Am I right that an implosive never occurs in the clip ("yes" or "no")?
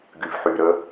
yes